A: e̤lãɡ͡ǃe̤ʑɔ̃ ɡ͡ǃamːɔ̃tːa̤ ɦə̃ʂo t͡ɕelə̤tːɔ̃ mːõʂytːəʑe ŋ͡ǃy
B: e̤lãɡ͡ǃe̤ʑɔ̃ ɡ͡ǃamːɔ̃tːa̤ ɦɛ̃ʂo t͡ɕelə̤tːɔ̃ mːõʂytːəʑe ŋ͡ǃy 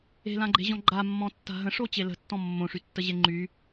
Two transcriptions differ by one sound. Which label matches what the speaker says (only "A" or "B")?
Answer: A